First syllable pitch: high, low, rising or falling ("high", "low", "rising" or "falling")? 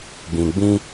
low